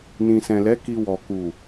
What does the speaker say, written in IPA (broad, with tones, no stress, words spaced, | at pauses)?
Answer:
nĩ˨sɛ̃˨lɛ˨˦ ki˧wɔ˨ ku˨